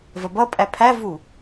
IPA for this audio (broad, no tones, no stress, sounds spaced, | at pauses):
v ɜ b ʌ pʼ æ pʰ æ v u